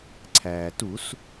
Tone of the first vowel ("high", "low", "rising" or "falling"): low